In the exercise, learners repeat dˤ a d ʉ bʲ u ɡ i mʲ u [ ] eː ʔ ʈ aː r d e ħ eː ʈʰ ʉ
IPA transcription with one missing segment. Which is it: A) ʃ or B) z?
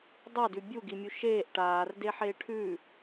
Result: A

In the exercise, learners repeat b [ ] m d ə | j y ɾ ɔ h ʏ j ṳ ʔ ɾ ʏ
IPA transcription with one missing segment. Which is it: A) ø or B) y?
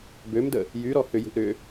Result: A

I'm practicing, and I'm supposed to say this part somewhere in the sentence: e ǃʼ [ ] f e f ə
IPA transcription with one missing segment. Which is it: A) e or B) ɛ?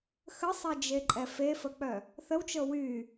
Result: B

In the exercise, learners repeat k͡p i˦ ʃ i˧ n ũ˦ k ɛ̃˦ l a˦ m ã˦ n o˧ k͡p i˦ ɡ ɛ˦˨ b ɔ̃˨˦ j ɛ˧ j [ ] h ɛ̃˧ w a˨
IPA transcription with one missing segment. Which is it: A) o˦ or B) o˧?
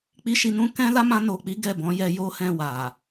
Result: A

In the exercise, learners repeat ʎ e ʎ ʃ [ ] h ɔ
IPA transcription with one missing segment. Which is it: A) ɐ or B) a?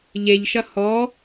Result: A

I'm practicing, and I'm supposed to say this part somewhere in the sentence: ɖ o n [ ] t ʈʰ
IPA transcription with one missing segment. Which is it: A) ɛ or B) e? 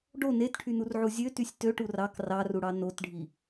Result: B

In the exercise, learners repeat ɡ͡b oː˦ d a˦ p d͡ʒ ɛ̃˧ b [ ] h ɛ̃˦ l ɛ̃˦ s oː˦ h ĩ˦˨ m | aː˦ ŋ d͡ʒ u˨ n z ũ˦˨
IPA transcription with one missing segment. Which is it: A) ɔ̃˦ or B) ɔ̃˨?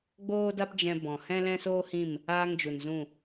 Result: B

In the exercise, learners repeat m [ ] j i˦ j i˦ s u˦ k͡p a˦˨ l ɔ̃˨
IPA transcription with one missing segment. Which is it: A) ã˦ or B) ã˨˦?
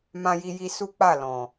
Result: A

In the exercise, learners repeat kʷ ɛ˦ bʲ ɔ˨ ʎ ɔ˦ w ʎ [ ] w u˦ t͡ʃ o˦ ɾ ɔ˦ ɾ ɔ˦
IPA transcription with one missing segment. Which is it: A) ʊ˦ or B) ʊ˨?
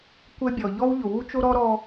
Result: B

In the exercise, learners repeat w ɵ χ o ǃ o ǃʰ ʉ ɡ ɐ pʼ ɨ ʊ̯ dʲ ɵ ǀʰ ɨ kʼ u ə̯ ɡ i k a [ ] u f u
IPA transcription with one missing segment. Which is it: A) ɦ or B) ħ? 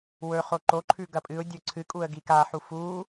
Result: B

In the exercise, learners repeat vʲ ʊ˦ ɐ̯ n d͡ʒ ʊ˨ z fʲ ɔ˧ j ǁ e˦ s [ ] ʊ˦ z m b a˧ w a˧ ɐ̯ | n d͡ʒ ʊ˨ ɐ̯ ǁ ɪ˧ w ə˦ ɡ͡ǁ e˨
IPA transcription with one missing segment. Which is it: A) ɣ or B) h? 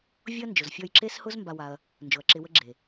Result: B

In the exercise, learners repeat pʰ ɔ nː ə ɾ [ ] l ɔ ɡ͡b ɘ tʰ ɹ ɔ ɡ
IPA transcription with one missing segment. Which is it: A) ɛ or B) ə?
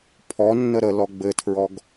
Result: B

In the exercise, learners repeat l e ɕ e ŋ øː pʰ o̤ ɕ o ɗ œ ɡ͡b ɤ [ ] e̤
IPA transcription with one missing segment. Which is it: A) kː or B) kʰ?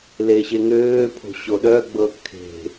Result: B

